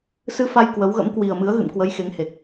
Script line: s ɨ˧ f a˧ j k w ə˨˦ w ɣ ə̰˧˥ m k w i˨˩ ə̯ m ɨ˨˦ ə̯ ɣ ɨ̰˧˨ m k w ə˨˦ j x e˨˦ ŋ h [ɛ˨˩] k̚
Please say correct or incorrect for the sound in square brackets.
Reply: incorrect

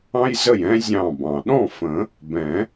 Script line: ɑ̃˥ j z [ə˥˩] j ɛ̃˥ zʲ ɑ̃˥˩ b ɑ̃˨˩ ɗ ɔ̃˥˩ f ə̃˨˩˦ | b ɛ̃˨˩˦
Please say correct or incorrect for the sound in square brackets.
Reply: correct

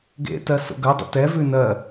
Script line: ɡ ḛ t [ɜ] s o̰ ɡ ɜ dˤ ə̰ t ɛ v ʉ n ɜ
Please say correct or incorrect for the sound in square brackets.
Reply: correct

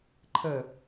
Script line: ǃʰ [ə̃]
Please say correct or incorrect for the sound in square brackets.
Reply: incorrect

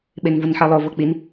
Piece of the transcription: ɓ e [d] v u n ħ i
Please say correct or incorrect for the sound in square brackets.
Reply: incorrect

